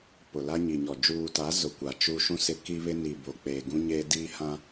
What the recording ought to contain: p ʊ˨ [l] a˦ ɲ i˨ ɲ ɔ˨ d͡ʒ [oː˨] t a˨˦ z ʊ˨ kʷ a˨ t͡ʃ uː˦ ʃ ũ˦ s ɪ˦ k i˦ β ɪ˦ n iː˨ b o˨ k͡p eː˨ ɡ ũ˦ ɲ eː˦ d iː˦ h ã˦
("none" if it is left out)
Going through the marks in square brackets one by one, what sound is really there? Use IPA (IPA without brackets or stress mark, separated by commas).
l, uː˨